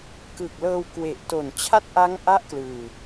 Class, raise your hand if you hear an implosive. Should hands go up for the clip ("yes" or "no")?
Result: no